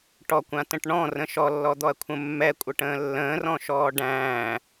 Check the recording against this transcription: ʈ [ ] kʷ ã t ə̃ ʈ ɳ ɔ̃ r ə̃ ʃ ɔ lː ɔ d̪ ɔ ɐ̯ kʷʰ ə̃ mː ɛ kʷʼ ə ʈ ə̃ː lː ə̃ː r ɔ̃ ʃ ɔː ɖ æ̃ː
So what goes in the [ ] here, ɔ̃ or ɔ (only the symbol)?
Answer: ɔ